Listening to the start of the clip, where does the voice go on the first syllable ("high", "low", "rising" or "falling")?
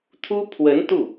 high